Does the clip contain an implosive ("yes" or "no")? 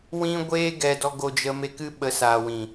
yes